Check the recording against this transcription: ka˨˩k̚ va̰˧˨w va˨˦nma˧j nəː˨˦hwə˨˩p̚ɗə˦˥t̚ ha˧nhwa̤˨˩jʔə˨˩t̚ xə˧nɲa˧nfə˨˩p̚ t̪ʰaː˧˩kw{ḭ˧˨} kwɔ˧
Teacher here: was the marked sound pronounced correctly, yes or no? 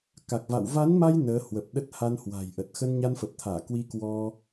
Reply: no